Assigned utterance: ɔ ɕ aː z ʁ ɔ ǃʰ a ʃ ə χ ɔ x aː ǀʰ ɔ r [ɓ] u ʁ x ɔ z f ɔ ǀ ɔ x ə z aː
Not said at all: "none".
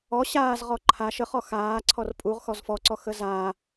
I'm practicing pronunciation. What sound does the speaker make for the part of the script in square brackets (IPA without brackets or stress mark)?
pʼ